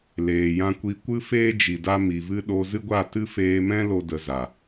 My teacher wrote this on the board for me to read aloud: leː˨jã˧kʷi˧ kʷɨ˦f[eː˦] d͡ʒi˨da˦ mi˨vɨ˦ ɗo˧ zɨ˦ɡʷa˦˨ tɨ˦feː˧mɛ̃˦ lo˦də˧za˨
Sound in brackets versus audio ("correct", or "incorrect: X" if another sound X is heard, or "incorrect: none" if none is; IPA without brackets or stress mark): correct